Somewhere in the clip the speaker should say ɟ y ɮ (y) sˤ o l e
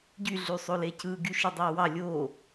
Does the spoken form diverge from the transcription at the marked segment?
no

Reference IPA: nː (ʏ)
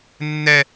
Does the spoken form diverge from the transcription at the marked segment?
yes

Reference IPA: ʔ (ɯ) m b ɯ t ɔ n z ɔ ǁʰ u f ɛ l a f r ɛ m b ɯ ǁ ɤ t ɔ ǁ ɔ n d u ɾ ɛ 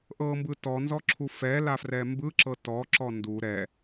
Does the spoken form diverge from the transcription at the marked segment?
yes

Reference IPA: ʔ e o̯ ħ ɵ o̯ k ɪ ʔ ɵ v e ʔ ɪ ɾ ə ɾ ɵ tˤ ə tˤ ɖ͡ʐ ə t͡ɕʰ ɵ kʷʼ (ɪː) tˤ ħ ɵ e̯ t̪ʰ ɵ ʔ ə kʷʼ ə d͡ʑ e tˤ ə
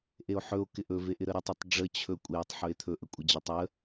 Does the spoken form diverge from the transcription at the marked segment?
no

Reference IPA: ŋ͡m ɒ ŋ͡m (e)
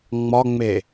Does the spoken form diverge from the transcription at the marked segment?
no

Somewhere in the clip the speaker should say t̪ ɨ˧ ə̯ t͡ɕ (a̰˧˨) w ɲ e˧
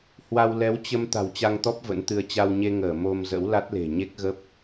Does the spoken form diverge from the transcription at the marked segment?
yes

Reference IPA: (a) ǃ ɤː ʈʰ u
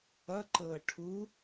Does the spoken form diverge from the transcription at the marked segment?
yes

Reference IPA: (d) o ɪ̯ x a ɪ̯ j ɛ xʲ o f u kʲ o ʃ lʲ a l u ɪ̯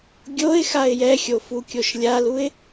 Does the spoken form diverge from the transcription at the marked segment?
yes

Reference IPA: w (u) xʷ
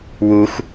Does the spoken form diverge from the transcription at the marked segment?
no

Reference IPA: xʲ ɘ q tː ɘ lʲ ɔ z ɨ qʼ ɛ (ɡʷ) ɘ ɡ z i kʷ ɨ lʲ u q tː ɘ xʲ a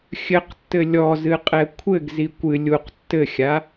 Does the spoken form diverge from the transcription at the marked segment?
yes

